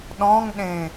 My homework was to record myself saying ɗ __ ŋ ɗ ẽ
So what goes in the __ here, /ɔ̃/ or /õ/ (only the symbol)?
ɔ̃